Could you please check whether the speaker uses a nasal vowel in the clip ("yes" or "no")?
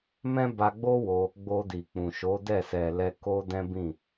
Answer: yes